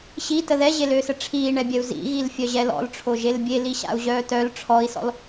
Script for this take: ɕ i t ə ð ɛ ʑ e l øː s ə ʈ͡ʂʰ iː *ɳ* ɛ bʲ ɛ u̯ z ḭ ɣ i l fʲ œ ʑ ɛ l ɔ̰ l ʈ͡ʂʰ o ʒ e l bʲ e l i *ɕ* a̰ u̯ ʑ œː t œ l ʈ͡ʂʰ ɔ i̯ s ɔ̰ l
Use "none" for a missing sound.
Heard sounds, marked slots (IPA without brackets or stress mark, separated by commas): ɳ, ɕ